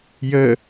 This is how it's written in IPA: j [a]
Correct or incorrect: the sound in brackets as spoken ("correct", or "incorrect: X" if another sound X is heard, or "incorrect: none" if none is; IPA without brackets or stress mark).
incorrect: ə